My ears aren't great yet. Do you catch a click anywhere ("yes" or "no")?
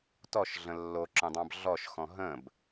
yes